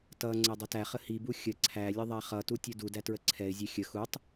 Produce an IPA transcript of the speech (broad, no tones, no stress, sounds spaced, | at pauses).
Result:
t ʌ ŋ͡ǀ ɛ dˤ ʌ t æ χ ə h i b u xʲ ə ǀʰ æ lʲ ə ðˤ æ χ ʌ t u tʲ u d u d æ t ɹ ə ǀʰ ɛ ɪ̯ zʲ ɛ xʲ ə x u tˤ